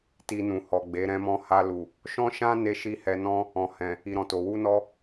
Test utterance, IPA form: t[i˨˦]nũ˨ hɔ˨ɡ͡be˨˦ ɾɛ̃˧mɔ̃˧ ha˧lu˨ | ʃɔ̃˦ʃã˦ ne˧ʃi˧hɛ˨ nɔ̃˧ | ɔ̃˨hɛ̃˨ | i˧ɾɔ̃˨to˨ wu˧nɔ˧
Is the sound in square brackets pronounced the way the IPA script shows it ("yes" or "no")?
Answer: no